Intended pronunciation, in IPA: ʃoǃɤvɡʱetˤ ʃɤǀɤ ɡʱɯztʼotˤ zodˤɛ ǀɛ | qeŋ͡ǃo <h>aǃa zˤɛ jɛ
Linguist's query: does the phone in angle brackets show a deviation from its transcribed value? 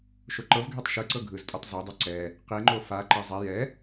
yes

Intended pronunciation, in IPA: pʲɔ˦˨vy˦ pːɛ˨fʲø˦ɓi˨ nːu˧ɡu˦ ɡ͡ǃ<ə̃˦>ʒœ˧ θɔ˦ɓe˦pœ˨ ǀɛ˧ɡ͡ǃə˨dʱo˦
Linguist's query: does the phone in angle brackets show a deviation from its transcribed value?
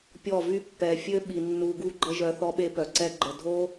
yes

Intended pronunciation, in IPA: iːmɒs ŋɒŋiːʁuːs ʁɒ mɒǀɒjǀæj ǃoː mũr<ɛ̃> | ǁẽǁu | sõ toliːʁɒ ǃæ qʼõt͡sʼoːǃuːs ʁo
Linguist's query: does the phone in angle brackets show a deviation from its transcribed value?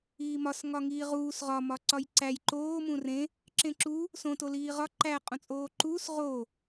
yes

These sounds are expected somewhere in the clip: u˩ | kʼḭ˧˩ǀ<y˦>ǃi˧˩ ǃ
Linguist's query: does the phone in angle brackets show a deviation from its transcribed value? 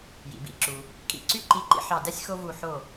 no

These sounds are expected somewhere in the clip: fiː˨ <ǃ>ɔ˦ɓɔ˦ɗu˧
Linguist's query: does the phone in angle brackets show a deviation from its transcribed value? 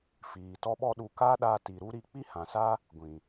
yes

